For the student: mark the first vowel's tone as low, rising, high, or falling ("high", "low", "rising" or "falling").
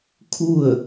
falling